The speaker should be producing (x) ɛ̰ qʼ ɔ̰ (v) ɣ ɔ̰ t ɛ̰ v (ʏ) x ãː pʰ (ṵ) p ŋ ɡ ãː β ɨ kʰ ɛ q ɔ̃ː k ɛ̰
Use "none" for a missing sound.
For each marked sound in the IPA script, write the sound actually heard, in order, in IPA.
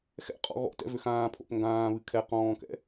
x, none, ʏ, o̰

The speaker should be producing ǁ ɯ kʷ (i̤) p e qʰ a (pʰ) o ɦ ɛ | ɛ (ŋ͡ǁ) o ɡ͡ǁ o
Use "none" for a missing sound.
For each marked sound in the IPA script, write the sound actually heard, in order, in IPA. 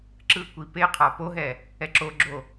i, p, ǁ

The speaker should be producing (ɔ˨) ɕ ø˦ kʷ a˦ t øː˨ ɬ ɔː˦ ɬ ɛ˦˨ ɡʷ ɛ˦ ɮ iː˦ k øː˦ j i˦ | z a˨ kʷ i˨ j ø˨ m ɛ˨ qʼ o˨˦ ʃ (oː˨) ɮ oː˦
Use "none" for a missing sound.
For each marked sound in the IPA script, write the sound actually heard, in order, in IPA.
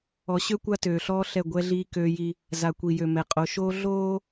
ɔ˨, oː˦

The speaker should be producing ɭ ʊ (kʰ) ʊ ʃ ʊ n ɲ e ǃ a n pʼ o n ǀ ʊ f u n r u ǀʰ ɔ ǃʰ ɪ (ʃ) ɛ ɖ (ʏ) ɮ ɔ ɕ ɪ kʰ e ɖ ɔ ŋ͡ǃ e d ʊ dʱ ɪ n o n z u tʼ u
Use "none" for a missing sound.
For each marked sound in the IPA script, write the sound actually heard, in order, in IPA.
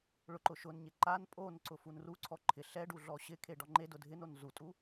ǃ, ɬ, u

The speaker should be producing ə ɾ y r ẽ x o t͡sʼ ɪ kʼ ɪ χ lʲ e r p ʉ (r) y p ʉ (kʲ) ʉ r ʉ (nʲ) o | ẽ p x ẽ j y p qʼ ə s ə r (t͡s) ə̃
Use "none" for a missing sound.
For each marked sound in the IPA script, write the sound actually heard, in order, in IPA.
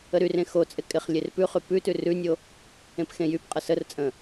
χ, t, nʲ, t͡sʼ

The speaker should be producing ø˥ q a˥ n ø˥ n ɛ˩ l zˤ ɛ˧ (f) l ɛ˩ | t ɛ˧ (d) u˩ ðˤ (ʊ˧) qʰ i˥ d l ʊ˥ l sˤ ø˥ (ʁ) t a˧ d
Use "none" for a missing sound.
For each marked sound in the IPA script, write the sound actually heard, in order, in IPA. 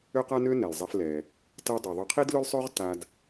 f, dˤ, ʊ˧, ʁ

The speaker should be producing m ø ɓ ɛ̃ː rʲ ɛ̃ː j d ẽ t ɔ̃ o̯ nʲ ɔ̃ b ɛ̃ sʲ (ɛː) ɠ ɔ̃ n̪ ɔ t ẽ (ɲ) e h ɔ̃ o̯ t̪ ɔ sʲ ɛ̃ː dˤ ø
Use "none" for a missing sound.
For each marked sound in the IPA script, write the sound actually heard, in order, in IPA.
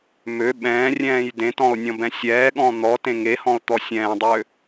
ɛː, ŋ

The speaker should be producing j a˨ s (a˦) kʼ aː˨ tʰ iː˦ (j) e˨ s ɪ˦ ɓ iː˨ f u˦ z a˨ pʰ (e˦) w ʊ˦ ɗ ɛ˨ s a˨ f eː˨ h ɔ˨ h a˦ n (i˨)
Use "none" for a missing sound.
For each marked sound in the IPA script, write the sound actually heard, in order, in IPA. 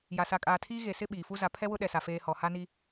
a˨, ɣ, ɛ˦, i˦

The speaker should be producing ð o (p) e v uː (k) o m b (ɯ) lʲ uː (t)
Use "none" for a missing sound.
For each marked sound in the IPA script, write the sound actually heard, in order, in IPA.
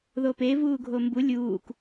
p, ɡʱ, u, k

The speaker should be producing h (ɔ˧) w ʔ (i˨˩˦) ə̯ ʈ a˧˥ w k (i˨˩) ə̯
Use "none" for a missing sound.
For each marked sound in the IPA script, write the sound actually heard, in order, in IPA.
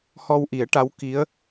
ɔ˧, i˨˩˦, i˧˥

